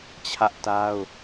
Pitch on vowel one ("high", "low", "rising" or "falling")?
high